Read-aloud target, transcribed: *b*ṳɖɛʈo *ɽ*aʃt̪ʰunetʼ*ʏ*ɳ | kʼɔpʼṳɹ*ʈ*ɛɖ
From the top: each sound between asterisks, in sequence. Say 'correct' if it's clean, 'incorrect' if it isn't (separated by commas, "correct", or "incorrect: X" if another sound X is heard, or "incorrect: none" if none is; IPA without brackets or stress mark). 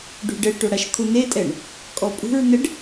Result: incorrect: ɖ, correct, incorrect: ɛ, incorrect: n